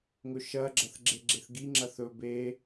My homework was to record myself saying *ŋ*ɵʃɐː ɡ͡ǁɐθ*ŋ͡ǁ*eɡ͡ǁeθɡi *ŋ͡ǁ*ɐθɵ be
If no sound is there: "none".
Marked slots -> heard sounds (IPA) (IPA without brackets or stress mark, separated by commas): ŋ, ɡ͡ǁ, ŋ͡ǁ